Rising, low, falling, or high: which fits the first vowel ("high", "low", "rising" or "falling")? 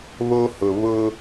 high